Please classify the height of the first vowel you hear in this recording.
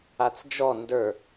low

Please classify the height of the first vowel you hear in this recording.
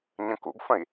mid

